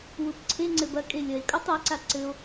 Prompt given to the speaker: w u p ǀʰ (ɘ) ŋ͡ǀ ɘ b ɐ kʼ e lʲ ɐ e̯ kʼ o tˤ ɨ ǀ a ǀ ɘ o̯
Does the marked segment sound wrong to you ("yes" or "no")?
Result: yes